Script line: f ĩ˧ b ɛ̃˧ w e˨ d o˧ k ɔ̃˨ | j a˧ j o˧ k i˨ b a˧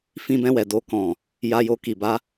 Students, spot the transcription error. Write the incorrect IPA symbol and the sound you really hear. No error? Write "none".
e˨ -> ɛ˨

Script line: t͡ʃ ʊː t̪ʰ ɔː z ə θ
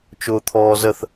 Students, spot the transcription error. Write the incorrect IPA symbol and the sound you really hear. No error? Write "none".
none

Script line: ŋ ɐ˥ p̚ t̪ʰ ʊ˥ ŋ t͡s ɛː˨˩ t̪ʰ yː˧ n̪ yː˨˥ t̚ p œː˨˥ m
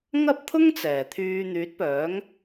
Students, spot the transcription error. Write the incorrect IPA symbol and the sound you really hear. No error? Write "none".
m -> ŋ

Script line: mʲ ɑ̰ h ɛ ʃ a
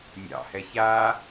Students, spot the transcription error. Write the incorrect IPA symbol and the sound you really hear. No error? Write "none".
ʃ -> ç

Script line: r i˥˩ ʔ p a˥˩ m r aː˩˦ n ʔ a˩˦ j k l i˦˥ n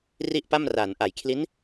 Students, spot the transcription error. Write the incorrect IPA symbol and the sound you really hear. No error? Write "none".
k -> kʰ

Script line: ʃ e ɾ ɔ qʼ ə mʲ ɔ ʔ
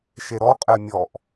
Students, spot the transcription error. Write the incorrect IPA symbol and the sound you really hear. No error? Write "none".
ə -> ɛ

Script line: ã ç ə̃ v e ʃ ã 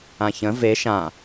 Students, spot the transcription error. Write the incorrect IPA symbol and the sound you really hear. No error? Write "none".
none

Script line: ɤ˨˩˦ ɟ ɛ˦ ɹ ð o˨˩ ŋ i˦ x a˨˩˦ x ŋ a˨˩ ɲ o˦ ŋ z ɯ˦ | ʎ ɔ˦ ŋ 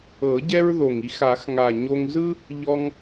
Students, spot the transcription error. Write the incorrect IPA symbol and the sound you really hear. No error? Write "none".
none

